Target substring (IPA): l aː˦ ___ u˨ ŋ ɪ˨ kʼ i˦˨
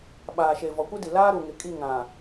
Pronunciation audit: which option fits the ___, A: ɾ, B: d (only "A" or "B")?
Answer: A